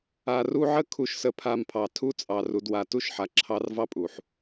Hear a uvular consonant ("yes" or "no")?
no